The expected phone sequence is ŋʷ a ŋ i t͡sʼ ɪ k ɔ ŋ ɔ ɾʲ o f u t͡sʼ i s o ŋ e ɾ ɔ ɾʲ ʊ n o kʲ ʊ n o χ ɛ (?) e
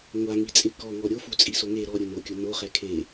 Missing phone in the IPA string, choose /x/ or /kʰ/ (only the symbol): kʰ